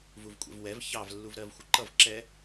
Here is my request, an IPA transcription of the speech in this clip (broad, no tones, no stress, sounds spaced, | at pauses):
v u v kʷʼ ɛ̰ v w ɛ v ç ɑ v lː u v ɾ ɜ v xʷ ʌ ǃ ʌ v ǁ ɛ